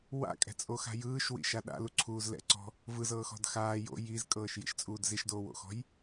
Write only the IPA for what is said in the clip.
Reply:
wa̰kʼɛ̤t͡sʼoxa̤ jɯːʃwḭʃa ɗa̰luǀʰuːz lɛ̰ǀɔ̤ | vɯzɤːxɔ̤d xaː jo̰ jizkʼɤːʃjḭʃt͡sʼuːd ziʃdoːwo̰xɔ̤j

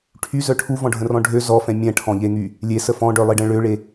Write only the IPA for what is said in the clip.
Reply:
ʈʰyzœ ʈʰuvɔ̃ɖʱə̃rɔ̃ ɖʱø zɔfɛ̃ mʲɛ̃ʈʰɔ̃ʎeŋy | lʲesə fɔ̃ɖœlˠiɖə̃ ɭøɭe

